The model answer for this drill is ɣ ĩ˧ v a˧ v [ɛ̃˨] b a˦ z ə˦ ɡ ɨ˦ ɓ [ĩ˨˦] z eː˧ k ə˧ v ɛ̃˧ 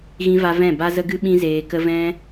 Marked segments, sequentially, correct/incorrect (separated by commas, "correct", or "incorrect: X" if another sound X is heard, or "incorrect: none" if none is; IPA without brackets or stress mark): incorrect: ɛ̃˦˨, incorrect: ĩ˦